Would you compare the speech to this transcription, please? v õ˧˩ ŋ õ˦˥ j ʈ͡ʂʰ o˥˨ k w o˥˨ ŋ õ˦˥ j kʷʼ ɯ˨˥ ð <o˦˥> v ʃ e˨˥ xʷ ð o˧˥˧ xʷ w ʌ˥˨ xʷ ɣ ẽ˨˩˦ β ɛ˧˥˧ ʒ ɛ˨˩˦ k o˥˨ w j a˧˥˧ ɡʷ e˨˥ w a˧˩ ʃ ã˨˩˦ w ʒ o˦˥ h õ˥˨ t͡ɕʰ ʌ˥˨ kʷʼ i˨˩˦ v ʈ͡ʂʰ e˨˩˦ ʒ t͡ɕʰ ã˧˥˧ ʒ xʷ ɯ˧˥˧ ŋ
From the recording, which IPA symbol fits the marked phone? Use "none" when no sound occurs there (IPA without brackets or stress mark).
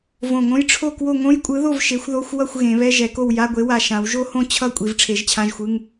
o˥˨